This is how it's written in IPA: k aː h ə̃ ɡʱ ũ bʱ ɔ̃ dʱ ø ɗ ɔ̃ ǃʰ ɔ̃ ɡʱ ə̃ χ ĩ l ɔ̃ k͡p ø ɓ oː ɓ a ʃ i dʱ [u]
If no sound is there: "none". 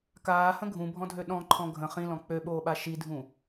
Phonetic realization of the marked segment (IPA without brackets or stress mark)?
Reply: ũ